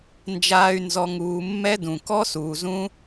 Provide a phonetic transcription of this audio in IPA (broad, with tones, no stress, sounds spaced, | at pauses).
n d͡ʒ aː˨ y̯ n z ɔ˨ ŋ uː˨ mː ɛ˦ d ũ˨ k ɔ˦ s uː˨ z ũ˦